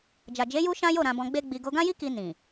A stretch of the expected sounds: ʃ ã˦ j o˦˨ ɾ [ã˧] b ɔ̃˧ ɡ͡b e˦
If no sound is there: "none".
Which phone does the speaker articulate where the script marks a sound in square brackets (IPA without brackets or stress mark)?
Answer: ã˧